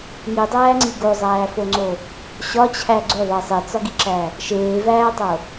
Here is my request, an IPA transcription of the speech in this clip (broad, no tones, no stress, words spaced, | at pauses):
ŋidˤæːŋ͡ǀi ɡozˤæːfoŋ͡ǀo | ɕɒt͡ɕʰæ ɡ͡ǀoðˤe sˤet͡sɒɡiǁæ | ʃeːvæːtˤo